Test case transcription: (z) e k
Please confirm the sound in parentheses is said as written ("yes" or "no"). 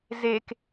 yes